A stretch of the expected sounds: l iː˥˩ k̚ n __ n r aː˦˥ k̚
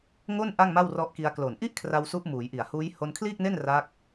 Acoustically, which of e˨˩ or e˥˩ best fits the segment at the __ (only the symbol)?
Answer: e˥˩